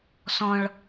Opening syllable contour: high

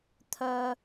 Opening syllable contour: low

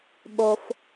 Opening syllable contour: low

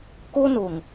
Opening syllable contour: high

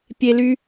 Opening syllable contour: high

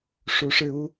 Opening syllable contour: rising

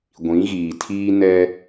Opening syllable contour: rising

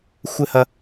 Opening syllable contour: high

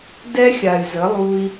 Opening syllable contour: high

